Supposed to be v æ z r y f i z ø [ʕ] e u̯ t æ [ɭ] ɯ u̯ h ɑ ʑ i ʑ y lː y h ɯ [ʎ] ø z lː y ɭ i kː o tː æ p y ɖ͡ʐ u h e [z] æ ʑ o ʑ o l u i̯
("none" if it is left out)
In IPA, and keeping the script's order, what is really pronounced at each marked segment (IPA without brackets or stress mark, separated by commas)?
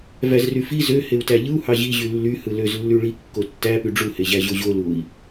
h, ʎ, l, ʑ